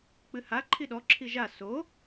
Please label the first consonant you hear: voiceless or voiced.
voiceless